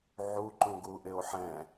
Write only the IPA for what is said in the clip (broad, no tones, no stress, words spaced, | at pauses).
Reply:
ʕuǃũ ɡuʔɪo̯ħɛ̃